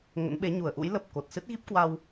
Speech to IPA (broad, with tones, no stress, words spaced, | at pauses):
ŋə̰˧˥nɓe˨˦ ɲu˧˩ə̯ʔṵ˧˥j lə˨˩p̚ ko˨˩t̚sɨ˦˥t̚ ɣi˦˥p̚kwa˧w